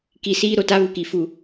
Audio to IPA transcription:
k i˨ s iː˦ ɾ o˨ t a˦ β u˨ k i˨ f u˨

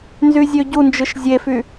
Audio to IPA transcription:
n z y zʲ ø ɟ u n d͡ʒ ɯ ʃ zʲ e f y

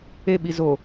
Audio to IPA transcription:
e ɓ i z o

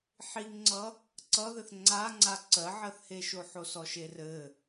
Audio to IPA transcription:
ħ i ŋ ŋ͡ǀ ʌ | ǀ ʌ ð ɘ θ ŋ͡ǀ a ŋ͡ǀ a ǀ ɜ ʕ ɜ θ h e ʃ o ħ o s ɔ ʃ e r ɘ

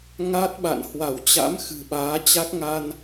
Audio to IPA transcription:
ŋ a˦˥ t̚ ɓ a̰˧˨ n h w a˧˩ w t͡ɕ a̰˧˥ m x ɨ̤˨˩ ɓ aː˨˦ t͡ɕ a˦˥ k̚ ŋ a˧ n

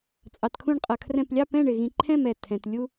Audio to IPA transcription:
t͡sʼ ɑ˧ t kʰ ũ˥˧ ɳ qʼ ʌ˧ kʰ r ɛ̃˥˧ p lʲ ɑ˥˧ p ɛ̃˥˧ ɳ ɪ˧ ɣ ĩ˧ ǃʰ ɛ̃˥˧ m ɛ˧˩ tʰ ɛ̃˧ t lʲ u˥

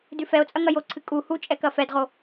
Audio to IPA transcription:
d ʉ f ɛ o̯ t͡sʼ ɐ ŋ ɐ j o ǀʰ ɨ kʼ u h u t͡ʃʼ ɛ k ɐ f ɛ d ʁ o

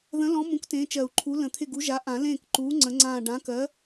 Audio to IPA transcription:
ð ə̃˨˥ l ɔ̃˨˥ m ũ˨˥ k t ẽː˨˥ t͡ʃ ɜ˨˩˦ u̯ ǃʰ u˨˥ l ə̃˨˩˦ t̪ʰ ɪ˦˨ ɡ u˨˥ ʒ a˨˥ ʔ ã˨˩˦ l ẽː˦˨ k ǃ uː˨˥ ŋ͡ǀ ə̃˨˥ ŋ͡ǀ ãː˦˨ ɖ ã˨˥ k ɜ˨˥

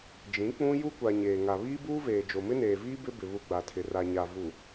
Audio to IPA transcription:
d͡ʒ ĩ˨˦ k͡p ũ˦ j u˦ kʷ a˨ ɲ eː˨ ŋ a˨ β iː˦ b uː˦ v eː˨ d͡ʒ o˨ m ɪ˦ n eː˨ v iː˦ b ɪ˦ b ɪ˨ β u˨ ɡ͡b a˨ tʰ ɪ˨ r a˨ ɲ a˨ v u˨

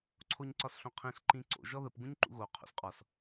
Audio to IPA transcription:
ǀʰ o ɲ ǀ ɒ s ɬ õ qʰ ĩ ɬ ǃ ĩ ǀ o̰ ʒ ɔ ð ə p ɡ ũ ɲ ǃ ṵ ɣ o qʰ o̰ s qʼ ɒ s

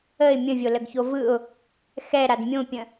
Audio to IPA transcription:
ə ɪ̯ mʲ ə̃ vʲ o l ə ɡ ç o v ɯ ʊ̯ | x ɛ ɾ a d mʲ õ pʲ ə̃

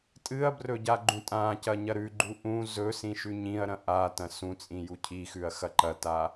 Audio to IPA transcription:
tʼ ɨ ɐ̯ b r ɵ ɟ a ɡ͡ǃ ũ tʼ ã c ɐ ɲ ɐ ɾ ʉ ɡ͡ǃ u ʔ ũ z ɵ s ĩ ʃ ʉ ɲ ĩ ɐ̯ ɾ ɐ̃ ʔ a t ɐ̃ s ũ t͡sʼ ĩ j u cʰ i x ʉ ɐ̯ x ɐ ǃ ɐ t a

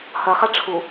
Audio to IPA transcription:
h ɐ χ a ʈ͡ʂʰ u

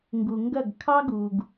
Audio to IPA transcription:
ŋ ɡ u˨ ŋ ɡ ɐ˦˨ ɡ kʰ ɑ˦ ɡ u˨ ɡ

